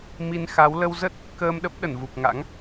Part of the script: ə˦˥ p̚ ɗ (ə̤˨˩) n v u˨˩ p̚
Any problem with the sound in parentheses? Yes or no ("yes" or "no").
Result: yes